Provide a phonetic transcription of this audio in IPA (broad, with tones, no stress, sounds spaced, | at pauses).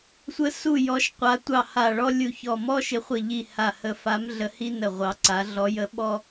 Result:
sʷ ə˨˦ s u˧˩ j ɔ˨˦ ʃ qʷ a˨˦ tʷ ɑ˧˩ h a˧˩ ɭ ɔ˦ lʲ u˧˩ ç ɔ˧˩ m ɔ˦ ʃ ɪ˨˦ χʷ ə˧˩ ʎ i˧˩ h a˧˩ h ə˧˩ f a˨˦ m ɮ ə˨˦ h i˦ n ə˧˩ ʁʷ ɑ˨˦ ǀ a˨˦ ɮ ɔ˨˦ j ə˨˦ ɓ ɔ˦